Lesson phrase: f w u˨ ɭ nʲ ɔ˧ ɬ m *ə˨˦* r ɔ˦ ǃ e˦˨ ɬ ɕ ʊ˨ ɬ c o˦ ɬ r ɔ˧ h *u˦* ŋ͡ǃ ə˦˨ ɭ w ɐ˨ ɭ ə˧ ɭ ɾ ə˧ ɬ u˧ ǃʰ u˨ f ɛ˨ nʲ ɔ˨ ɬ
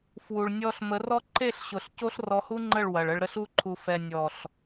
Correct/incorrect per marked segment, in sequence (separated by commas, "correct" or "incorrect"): correct, correct